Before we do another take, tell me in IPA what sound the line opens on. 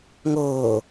ŋ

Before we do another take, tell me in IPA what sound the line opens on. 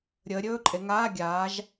ɾʲ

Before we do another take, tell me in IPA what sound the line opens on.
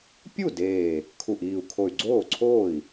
pʲ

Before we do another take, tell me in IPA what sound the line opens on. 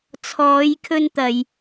t͡sʰ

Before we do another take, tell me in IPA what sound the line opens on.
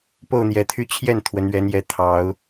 p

